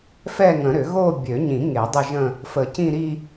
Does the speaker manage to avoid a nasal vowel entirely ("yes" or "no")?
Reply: no